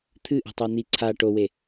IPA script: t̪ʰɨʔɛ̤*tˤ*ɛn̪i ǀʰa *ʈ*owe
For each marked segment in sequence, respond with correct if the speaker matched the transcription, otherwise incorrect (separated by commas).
correct, correct